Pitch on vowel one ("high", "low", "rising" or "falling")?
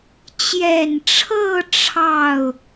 low